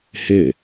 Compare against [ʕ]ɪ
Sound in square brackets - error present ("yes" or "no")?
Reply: yes